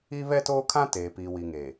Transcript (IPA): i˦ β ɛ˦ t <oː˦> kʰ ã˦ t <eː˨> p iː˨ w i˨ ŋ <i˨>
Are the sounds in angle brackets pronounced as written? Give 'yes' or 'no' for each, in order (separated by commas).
yes, yes, no